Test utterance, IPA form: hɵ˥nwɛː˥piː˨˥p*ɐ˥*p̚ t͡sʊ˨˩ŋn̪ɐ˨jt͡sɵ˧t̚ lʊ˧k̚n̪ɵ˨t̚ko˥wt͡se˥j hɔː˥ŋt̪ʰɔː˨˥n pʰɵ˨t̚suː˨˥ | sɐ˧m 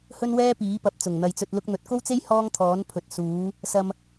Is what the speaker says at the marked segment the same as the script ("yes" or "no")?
no